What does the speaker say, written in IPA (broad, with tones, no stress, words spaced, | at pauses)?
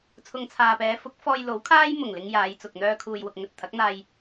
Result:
t͡sʰʊ˨ŋt͡sʰaː˨pɛː˨˧ fʊ˨˥k̚fɔː˧jlo˨˥wkʰaː˥j mʊ˨˩ŋ lɪ˥ŋ jaː˨˧jt͡sʊ˨k̚ n̪œː˧kʰuː˨jwʊ˨k̚ ŋɵ˨t̚t̪ʰɐ˨˥k̚n̪aː˧j